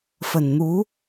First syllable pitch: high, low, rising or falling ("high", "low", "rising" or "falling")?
low